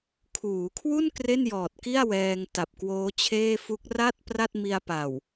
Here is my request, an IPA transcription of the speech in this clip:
kʰuː˩˦kʰwu˥˩n kre˥˩njɔː˨˩t̚ki˥˩a̯ wɛː˧ŋ ta˨˩p̚kwoː˦˥t͡ɕʰeː˥˩fu˦˥k̚ ra˥˩t̚ pra˥˩t̚mi˧a̯pa˨˩w

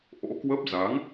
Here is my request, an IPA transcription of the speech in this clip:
ʔo̰˧˥kwə˦˥p̚ za˨˦ŋ

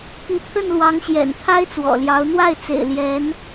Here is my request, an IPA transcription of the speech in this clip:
pi˧˥pʰə˥˩nlwɑ˧˥ŋɕjɛ̰˨˩n t̪ʰa˥ɪ̯t͡swɔ̰˨˩ljɑ˧˥ʊ̯ n̪wa˥˩ɪ̯t͡sḛ˨˩ɪ̯ ljɛ˧˥n

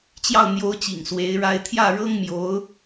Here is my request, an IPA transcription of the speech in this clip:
t͡ɕjɑ˥˩ʊ̯n̪jo˧˥ʊ̯t͡ɕḭ˨˩ŋ swe˧˥ɪ̯ɻa˥ɪ̯ t̪ʰjä˥˩ɻɤ˥ŋmjo˧˥ʊ̯

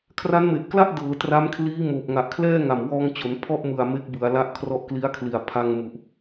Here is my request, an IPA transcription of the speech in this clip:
kʰra˦˥nme˨˩ʔkla˥˩ʔ dɤː˩˦tra˦˥mkʰliː˦˥ moː˨˩p̚ŋa˨˩ʔkʰlɛː˥˩ ŋa˨˩mwɔː˧ŋt͡ɕo˩˦n pʰɔ˥˩ʔmɯ˨˩a̯ me˦˥k̚bɯ˩˦a̯ la˦˥ʔkʰrɔ˦˥ʔkli˦˥a̯ kʰli˨˩a̯pʰa˧ŋ mu˨˩ʔ

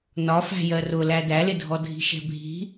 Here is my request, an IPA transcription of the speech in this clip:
nɒ fæ̤jɜrʊ lædælɪdʱɔ dʱi̤ʃɛ̤bʱi̤

